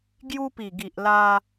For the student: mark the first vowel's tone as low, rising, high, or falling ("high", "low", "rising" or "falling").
high